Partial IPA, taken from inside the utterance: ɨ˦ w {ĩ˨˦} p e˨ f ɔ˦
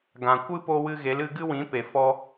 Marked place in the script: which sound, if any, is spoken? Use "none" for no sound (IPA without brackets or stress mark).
ĩ˨˦